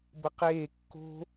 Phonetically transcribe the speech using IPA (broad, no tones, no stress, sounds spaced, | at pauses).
b ə q eː kː o̤